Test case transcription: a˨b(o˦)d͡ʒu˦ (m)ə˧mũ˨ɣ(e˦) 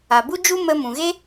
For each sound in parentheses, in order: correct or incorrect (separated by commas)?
incorrect, correct, correct